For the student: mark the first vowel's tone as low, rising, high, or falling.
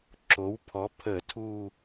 rising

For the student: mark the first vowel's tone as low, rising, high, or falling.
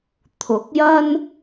rising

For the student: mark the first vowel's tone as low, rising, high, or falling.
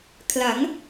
rising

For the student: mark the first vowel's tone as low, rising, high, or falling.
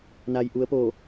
low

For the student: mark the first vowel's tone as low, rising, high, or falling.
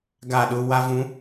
falling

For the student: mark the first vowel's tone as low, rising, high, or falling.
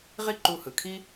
high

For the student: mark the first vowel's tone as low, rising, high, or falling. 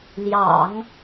low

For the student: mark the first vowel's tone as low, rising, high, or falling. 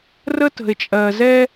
high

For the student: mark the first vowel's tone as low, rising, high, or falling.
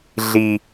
low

